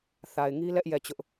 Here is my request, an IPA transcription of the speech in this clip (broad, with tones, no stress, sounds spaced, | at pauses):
θ a˨ ɪ̯ ŋ i˦ l ɛ˦ ʔ j ɛ˦˨ t͡ɕ ʊ˦ ʔ